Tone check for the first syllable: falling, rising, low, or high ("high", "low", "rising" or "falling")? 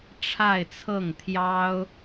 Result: falling